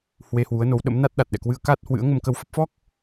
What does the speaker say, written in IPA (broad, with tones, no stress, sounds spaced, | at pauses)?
h w e˧ h w u˨˦ ə̯ n o˨˦ w ɗ ə̰˧˥ m n a˦˥ t̚ ɗ a˨˩ t̚ ɗ ɛ̰˧˨ k w ɨ˧ ə̯ k a˦˥ t̚ h w ɨ̰˧˥ ə̯ ŋ ə˧ m k ə˧ w f ə˦˥ p̚ f ɔ˦˥ k̚